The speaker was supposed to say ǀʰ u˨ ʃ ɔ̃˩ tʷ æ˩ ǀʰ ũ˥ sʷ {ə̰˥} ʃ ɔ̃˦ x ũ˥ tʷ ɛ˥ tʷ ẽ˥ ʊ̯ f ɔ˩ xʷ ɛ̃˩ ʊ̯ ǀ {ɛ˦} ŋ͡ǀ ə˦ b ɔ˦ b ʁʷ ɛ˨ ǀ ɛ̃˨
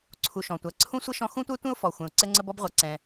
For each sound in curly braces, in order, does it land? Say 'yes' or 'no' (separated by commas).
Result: no, yes